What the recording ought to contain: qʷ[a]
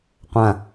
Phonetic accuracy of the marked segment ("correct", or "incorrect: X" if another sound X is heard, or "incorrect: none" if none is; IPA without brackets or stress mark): incorrect: ã